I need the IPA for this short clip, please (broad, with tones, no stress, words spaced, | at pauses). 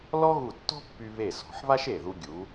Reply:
lɔ˥ɣu˧˩tːɔ̤˥pːy˧ βe˧˩sɔ̤˩˧ħβa˥ʃ e˧˩ðu˧ ɡʲu˩˧